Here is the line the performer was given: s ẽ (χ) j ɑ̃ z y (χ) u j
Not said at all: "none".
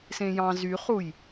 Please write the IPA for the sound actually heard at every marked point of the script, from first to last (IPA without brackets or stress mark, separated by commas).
none, χ